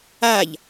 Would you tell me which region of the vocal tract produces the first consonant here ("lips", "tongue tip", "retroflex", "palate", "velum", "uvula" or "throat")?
palate